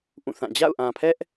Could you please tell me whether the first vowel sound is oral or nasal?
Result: nasal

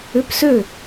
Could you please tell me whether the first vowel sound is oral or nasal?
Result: oral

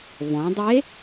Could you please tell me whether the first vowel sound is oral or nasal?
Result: nasal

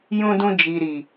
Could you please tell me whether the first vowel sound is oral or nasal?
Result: nasal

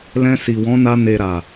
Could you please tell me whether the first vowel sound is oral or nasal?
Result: nasal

